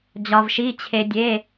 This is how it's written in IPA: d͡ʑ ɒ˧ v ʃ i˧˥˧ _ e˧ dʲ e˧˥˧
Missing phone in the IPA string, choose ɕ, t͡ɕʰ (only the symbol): t͡ɕʰ